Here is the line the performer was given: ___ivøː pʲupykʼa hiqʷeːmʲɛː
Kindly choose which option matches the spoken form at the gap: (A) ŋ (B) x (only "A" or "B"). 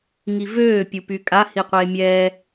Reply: A